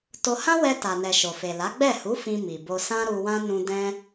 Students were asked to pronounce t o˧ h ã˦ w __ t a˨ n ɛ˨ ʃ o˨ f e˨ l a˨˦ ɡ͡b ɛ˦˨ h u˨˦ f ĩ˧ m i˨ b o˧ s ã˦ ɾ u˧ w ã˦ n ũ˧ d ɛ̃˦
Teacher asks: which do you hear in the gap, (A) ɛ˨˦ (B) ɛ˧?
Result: B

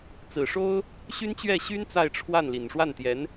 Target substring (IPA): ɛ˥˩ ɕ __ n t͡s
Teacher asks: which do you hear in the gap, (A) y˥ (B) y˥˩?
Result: A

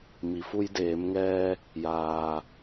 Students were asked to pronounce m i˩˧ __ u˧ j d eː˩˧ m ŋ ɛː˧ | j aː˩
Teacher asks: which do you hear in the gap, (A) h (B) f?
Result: B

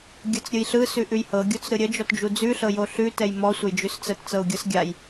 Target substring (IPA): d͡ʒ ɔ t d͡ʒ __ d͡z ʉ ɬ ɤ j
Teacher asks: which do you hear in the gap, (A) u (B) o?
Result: A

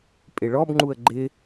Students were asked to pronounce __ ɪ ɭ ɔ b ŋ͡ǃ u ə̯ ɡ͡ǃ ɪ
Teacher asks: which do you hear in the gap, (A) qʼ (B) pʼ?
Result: B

